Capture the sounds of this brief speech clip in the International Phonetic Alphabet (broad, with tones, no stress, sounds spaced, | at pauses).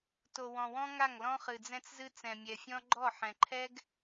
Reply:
t o˨ w ɔ̃˨ w ɔ̃˦ ŋ a˦˨ ŋ l ɔ̃˦ χ ɨ˨ d͡z ɛ̃˦ t͡s z ɨ˦ t͡s ɛ̃˨ mʲ ɛ˨ fʲ ɔ̃˦ ɡ͡ǃ ɔ˦˨ ħ ɛ̃˨ ǃʰ ɛ˦ ɡ